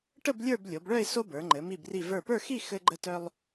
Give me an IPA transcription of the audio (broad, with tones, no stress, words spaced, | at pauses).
ʈə˥˧b lʲə˞˥˧blʲo˩˧bɭœ˥˧ɪ̯ so˥bə˞˩˧ŋ͡ǃɘ˩˧ mi˧˩bri˧˩ və˞˧˩pə˞˥˧xi˥˧ xɘ˧ɡ͡ǃə˧tœ˧lˠ